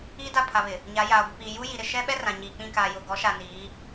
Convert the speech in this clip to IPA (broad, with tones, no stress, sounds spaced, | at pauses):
i˦ d a˦˨ pʰ a˨ β ɪ˨ | ɲ a˨˦ j aː˨ ɡʷ ɪ˨ p iː˨ j u˦ j i˨ ɾ ɪ˨ ʃ ɛ˦ ɓ ɛ˦ r ã˨ ɲ iː˨ k͡p ĩ˦˨ k aː˨ j ʊ˨ ɡ ɔ˨˦ ʃ a˨ n iː˨˦